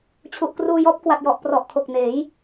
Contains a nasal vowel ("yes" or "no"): no